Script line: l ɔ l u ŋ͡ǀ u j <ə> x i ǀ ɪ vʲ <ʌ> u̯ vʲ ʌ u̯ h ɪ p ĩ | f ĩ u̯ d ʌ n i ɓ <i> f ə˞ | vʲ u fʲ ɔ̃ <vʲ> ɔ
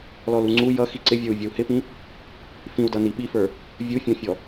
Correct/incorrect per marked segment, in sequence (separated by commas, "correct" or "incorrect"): incorrect, incorrect, correct, incorrect